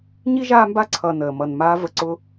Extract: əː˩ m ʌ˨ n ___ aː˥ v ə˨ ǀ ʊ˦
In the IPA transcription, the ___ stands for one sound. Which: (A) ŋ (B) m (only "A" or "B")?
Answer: B